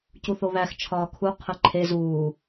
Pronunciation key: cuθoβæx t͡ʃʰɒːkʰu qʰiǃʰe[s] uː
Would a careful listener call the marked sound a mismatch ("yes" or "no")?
yes